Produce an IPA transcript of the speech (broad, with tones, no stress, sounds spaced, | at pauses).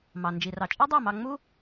m ɑ˩ n d͡ʒ i˩ r ɑ˩ t͡ʃʼ e˥ dˤ æ˥˩ m ɑ˧ ŋ͡m u˥